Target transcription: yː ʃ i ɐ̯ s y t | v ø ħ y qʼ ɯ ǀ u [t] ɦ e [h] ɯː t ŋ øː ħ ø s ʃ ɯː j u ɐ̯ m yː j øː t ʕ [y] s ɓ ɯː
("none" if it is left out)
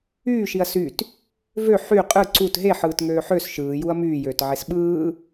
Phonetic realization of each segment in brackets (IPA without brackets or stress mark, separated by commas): t, ħ, e